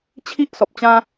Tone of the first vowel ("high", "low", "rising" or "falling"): high